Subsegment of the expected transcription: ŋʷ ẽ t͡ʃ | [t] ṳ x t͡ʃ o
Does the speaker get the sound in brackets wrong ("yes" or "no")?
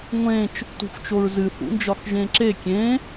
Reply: no